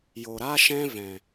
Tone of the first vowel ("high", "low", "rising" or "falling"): low